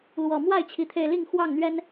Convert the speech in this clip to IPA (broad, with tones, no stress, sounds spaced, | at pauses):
l w ɔ˨˩ m w a˥˨ ɪ̯ t͡ɕʰ i˨˦ t̪ʰ e˧ ɪ̯ l i˥˨ ŋ x w ɑ˥˨ ŋ n̪ ɥ ɛ˦ n